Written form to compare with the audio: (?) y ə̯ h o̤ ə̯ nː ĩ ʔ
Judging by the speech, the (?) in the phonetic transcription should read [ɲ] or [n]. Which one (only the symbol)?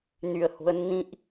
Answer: n